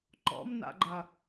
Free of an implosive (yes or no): yes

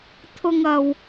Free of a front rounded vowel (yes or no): yes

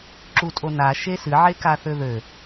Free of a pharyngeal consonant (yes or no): no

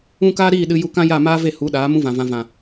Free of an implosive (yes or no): no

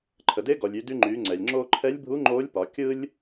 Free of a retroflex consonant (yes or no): yes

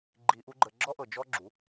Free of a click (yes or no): no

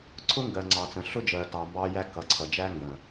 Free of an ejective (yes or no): yes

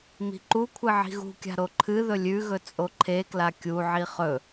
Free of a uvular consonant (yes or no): no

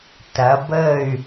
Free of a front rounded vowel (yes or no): no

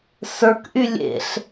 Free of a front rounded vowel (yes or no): no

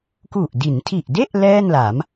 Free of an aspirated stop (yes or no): no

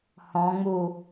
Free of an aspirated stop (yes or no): yes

